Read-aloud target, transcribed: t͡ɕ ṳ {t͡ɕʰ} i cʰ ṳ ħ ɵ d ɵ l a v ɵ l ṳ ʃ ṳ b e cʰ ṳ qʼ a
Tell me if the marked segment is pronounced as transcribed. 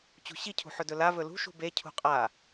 no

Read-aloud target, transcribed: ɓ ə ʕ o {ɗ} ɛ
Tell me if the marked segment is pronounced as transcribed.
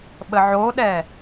yes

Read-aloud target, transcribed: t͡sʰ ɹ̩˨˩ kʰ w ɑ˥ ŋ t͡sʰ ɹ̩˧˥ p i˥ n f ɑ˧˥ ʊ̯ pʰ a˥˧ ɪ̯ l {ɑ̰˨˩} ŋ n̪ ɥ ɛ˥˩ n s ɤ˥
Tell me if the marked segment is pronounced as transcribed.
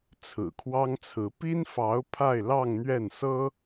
no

